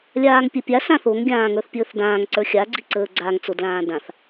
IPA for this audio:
lʲaːŋpʲə˞pʲa sãθoŋ ɡʲãːŋə˞θpʲəːθdãːŋ ǀə˞xʲa ɡ͡ǀiǀəːɡ͡ǀaŋ t͡sodlãːdãθ

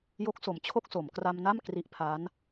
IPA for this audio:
jo˦˥k̚so˨˩mt͡ɕʰo˥˩k̚so˩˦m kra˧m na˥˩m kri˦˥ʔpʰa˦˥n

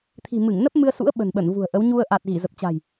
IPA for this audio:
t̪ʰi̤˨˩ mɨ˧˩ŋnə˦˥p̚ mɨ˧ə̯sṵ˧˥ə̯ ɓə̤˨˩nɓə˧˩n vṳ˨˩ə̯ʔə˨˦w ɲu˧ə̯ ʔa˨˩t̚ ɣi˧˩zə˨˩p̚t͡ɕa̤˨˩j

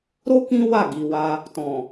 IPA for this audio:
ɾo˦ kĩ˦wa˦˨ ɡi˨wa˧ | tɔ̃˨

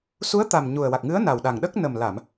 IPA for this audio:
su˧˥ə̯t̪a˨˩m ɲu˨˩ə̯wa˨˩k̚ ŋɨ˧˥ə̯na˨˩w ɗa˨˩ŋɗə˦˥k̚ nə˨˩m la˨˩˨m

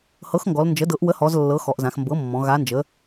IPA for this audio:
hɤ˩˥xŋɡɔ˩˧l nd͡ʒə˩˥dɤ˩˥ʔ wə˩˥hɔ˩˧zlːɤ˩˧ xɔ˩˧ʔzã˩˧xmbɤ˩˥mːɔ̃˩˧ ɣa˩˧nd͡ʒə˩˧

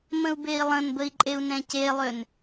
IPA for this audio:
mə̃u̯bei̯lˠə̃nbəi̯ ǃʼeu̯nɛ̃celˠøn

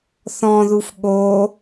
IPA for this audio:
θɔ̃ðuf ɠo

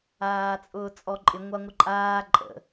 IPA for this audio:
aːt͡sʼʊːt͡sʼɔǃʼɪ ŋʷaŋʷɪǃʼaː ǃʼə̰

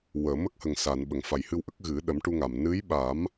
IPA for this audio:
wəː˨˩˨mə˦˥k̚ hə˨˩ŋsa˨˩˨n ɓə˨˩˨ŋfa˨˩jhɨ˧wʔə˦˥k̚ ɣɨ˨˩˦ɗə˨˩˦mʈu˧ŋa˨˩m nɨ˧˥jɓa˨˩˦m

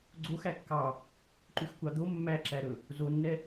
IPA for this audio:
ɡ͡ǀox ækːɑ | ǃʉxkʷɑd̪o mːæǁæɾɵ | zonːɛ

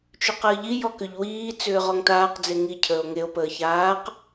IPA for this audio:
t͡ʃʏqəːʎi jɔkʏʎ wiː t͡sʏːʁɔŋtaːq d͡zeŋi cʰəːo̯ŋeo̯ pəːçaːq

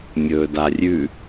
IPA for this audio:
mʲɵːdarʲʉ

